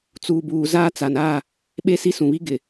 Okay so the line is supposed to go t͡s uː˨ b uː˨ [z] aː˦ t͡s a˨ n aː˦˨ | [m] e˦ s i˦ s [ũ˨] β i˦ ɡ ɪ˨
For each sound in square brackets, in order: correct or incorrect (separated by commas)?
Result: correct, incorrect, correct